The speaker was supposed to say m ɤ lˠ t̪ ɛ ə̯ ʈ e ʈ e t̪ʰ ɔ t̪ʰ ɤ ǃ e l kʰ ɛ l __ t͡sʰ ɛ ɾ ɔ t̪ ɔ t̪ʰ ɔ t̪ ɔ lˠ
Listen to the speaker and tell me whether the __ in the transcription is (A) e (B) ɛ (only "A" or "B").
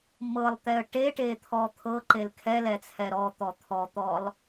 B